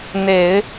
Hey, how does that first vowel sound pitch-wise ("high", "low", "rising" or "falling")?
low